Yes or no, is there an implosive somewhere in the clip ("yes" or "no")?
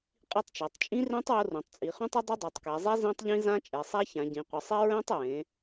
no